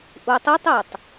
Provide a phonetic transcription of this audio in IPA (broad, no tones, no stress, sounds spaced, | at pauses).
ʔ u tˤ ɯ tˤ e tˤ